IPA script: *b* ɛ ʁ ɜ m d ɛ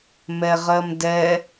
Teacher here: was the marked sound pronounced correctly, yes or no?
no